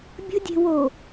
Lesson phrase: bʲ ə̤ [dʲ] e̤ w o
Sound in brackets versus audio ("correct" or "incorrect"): correct